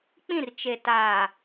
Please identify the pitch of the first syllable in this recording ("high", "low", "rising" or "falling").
falling